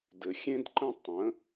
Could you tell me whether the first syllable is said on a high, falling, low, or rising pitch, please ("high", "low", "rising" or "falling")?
low